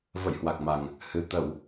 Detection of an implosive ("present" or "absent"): absent